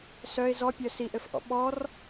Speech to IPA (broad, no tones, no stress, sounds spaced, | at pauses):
s œ ɪ̯ z ɔ pʲ œ s i ʔ ɘ f ʔ ɔ̰ ɓ ɔ r